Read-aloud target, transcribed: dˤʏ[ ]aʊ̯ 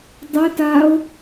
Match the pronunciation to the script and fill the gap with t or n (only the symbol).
t